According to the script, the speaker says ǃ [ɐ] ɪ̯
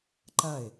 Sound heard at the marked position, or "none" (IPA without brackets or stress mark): ɐ